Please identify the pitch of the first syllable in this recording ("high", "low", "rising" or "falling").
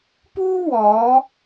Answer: high